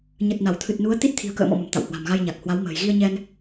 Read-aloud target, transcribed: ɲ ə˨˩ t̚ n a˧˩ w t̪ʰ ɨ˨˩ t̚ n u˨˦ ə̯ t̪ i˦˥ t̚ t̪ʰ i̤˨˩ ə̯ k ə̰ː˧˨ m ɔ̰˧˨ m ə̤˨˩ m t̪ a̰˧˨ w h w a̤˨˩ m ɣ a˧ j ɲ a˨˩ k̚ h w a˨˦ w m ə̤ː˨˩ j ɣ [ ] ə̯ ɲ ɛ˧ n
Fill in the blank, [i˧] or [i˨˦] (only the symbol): i˧